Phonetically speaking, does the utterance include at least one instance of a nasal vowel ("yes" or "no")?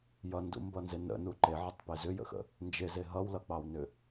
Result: no